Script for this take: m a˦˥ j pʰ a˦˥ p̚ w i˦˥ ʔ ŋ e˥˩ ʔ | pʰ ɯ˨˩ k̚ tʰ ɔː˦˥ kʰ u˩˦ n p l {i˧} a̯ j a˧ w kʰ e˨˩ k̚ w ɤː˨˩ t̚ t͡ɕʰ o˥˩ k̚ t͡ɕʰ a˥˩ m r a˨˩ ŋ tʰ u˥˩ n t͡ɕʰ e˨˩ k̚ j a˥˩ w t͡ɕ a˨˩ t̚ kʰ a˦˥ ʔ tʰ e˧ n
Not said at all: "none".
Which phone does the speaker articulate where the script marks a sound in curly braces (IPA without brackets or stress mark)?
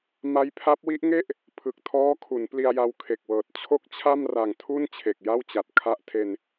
i˧